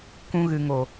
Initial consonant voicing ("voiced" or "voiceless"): voiceless